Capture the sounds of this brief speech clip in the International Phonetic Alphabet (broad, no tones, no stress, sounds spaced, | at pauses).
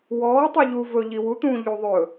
w ɔː tˤ i ʎ u v ɵ ʎ i w u t̪ ũː ʎ u ðˤ ɵ